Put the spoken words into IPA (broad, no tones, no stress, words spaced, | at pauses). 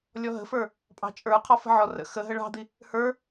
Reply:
lʲɔɦə̤fə˞ | pʼɑ̤t͡ʃʼə˞ qʰɔfə̤ʕɔ rə̰ xə ɦəɭɑ̤d̪i | hə˞